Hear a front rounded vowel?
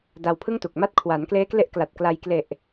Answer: no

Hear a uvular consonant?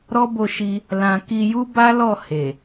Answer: no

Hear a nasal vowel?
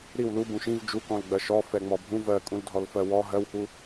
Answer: yes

